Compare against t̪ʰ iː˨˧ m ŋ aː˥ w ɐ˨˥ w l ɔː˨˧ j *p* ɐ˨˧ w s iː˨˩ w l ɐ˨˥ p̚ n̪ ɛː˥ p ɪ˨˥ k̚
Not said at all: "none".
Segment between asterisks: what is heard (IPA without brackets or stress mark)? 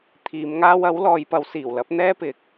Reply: p